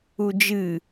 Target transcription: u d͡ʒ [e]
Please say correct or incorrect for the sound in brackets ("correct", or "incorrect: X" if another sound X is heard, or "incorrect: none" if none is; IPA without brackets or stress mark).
incorrect: ɨ